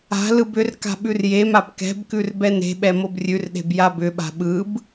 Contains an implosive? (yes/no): yes